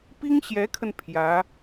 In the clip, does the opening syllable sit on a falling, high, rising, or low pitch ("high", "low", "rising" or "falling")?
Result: high